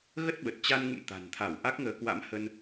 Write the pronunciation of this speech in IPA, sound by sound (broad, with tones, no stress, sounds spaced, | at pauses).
ɣ ə˦˥ t̚ ɓ ə˨˩ t̚ t͡ɕ a˧ n ŋ ṵ˧˨ m t̪ a̤˨˩ n t̪ʰ a˧˩ w ʔ a˦˥ k̚ ŋ əː˨˦ k w a̰˧˥ m h ə˧ n